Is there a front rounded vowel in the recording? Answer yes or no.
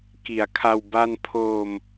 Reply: no